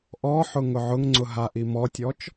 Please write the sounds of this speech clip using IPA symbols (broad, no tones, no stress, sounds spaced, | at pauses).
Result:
ʔ ɔ ħ ʊ ŋ ʊ ʕ ʊ ŋ ŋ͡ǀ ʊ ɦ a ʔ i m ɔ tʲ ɔ t͡ʃ